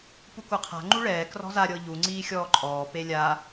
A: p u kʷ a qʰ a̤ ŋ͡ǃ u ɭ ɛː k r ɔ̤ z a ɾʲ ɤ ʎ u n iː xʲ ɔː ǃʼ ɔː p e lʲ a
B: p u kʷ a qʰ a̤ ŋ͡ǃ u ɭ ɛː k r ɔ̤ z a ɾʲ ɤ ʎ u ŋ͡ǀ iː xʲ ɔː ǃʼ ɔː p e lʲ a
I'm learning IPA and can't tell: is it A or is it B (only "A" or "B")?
B